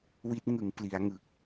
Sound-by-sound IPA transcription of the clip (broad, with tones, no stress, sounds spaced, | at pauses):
w i˦˥ t̚ ŋ ɯ˩˦ ŋ p l i˩˦ a̯ ŋ ɯ˨˩ k̚